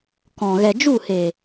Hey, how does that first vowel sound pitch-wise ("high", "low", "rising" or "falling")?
low